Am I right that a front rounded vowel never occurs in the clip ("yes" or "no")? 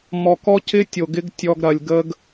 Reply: yes